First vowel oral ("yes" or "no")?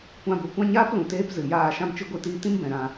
no